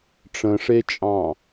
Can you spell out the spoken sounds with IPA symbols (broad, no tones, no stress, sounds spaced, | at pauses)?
ʈ͡ʂ ə̃ ʂ e t͡ʃʼ ɑ̃